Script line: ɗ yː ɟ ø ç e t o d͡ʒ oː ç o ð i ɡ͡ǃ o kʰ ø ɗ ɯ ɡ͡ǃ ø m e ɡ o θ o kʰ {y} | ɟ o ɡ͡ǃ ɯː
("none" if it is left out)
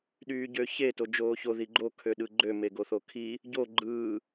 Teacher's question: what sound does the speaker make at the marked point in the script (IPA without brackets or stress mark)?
i